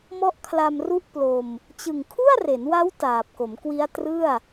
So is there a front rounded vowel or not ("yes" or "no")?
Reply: no